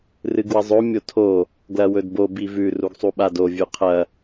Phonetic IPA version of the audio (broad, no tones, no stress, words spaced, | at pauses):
rɨɡwɐzˤo mʲotʰo | ɡlɐwɵdbo bivʉ ruɡsˤuɓado vʲʉqʰɐ